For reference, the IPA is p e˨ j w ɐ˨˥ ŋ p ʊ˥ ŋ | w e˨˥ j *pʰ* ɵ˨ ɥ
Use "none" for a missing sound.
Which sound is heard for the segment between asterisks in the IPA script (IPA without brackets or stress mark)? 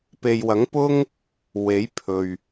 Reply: pʰ